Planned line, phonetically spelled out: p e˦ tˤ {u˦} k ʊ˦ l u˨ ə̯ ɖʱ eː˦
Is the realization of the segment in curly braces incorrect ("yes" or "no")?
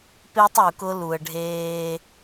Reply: yes